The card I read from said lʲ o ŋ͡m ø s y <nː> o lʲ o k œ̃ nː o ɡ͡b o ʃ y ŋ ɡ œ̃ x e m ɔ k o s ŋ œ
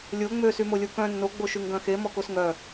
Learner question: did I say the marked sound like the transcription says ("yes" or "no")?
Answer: no